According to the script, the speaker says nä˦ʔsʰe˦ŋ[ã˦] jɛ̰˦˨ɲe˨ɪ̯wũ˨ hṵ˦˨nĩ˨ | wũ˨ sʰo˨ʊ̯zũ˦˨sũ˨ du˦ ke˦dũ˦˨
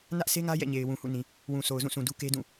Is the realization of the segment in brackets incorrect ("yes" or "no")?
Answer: yes